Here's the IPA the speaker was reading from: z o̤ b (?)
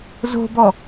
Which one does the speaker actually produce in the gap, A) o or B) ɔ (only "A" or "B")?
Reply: B